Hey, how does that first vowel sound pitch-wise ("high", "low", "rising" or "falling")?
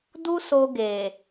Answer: high